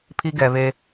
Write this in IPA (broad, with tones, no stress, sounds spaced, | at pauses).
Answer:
pʰ i˦ ɡ ɛ˨ β e˦